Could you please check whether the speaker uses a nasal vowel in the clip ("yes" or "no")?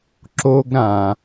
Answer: yes